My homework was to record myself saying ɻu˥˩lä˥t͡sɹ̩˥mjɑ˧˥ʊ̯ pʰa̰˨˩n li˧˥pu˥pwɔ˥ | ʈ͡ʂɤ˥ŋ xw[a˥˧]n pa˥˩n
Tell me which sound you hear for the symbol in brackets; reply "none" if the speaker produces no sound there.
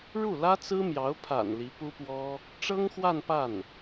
a˥˧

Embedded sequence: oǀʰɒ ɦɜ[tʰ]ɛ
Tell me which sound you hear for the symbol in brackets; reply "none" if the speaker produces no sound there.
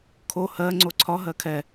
kʰ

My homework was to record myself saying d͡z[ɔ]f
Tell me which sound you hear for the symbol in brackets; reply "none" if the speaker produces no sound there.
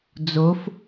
o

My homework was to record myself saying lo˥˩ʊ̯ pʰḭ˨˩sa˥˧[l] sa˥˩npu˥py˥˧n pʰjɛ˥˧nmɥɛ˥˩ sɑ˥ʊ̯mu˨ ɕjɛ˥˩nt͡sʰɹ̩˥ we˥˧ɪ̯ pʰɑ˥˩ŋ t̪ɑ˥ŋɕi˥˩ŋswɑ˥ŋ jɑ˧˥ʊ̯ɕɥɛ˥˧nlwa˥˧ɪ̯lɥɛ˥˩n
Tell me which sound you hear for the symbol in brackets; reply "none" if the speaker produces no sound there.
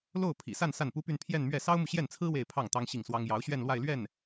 n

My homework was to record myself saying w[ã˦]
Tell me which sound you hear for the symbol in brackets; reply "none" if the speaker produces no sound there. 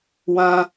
ã˦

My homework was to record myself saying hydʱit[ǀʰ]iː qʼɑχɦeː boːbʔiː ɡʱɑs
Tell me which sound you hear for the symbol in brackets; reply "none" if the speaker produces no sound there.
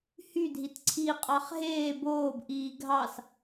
ǀʰ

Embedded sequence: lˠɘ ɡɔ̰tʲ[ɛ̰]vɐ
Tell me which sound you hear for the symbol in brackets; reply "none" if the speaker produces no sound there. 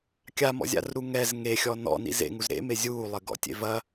ḛ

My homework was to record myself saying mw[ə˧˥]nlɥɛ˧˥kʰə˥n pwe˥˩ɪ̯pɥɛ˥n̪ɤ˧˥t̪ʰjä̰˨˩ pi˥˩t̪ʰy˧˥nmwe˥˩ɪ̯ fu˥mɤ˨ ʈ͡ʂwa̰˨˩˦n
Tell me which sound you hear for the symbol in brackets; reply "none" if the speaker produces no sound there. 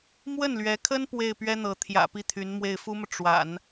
ə˥˩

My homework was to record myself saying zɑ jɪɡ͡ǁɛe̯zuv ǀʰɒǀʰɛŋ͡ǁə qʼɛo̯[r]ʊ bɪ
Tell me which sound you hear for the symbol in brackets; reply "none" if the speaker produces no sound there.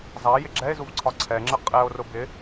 r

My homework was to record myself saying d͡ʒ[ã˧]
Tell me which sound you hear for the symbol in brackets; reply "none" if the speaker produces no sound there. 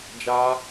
a˧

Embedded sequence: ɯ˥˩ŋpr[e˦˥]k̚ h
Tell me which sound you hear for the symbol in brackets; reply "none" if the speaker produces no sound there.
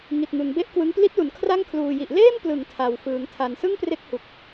e˦˥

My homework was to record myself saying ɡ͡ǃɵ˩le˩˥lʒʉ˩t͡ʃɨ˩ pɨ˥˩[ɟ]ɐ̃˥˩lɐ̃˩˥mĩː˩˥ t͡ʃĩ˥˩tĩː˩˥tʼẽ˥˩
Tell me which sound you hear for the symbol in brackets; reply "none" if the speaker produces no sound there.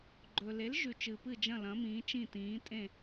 d͡ʒ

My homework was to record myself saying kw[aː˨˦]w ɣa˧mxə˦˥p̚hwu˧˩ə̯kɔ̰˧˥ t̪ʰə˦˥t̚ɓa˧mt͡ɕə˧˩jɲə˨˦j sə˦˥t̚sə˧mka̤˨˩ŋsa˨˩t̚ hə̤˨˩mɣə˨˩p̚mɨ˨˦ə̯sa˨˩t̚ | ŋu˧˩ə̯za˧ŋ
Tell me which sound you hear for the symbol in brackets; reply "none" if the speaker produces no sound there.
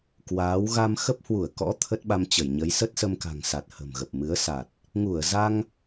aː˨˦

